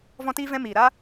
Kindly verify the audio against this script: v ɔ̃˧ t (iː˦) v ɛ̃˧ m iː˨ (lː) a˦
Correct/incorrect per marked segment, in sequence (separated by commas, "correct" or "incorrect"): incorrect, incorrect